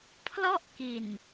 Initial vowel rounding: rounded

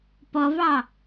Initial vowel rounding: rounded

